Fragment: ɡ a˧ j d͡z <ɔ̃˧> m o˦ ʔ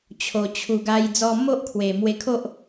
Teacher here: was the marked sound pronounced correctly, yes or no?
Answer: no